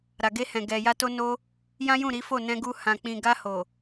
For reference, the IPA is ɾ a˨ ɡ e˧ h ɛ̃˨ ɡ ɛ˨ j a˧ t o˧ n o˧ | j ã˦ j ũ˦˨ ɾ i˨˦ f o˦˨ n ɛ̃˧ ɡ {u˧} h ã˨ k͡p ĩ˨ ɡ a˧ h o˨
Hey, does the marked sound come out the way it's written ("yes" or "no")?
yes